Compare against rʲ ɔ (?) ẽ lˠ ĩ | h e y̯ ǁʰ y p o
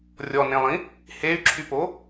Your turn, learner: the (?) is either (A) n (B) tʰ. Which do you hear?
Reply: A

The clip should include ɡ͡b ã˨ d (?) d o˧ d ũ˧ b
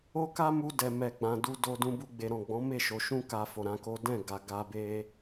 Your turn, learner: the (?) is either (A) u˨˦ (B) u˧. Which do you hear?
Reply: B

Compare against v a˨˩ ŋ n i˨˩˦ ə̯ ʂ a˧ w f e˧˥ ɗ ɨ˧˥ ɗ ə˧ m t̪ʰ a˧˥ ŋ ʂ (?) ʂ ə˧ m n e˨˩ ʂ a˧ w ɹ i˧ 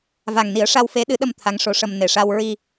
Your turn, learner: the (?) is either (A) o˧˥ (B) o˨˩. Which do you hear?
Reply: A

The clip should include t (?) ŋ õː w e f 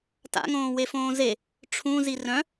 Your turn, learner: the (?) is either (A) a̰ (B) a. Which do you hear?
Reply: A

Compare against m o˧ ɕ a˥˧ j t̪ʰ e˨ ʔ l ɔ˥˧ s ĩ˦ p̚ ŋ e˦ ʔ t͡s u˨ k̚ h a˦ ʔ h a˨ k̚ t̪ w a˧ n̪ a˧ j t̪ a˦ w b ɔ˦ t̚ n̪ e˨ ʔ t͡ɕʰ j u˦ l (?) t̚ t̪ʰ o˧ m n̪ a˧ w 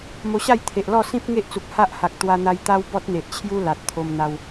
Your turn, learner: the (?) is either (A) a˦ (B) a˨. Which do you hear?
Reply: B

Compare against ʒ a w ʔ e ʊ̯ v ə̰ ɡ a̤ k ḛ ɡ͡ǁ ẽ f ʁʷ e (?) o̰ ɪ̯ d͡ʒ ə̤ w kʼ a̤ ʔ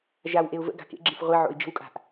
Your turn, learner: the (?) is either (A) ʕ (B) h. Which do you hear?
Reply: A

